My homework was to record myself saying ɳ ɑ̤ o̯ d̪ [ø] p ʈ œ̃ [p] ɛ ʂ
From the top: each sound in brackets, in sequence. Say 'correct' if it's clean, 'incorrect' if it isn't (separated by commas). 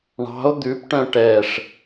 incorrect, incorrect